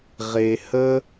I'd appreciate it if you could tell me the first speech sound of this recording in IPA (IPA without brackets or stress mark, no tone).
ʁ